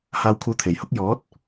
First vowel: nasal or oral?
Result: oral